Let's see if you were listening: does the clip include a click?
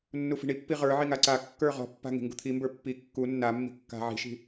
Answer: yes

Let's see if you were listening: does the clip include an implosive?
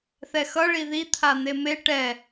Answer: no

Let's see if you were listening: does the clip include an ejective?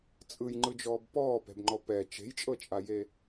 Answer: yes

